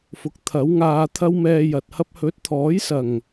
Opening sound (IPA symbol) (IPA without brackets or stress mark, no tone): f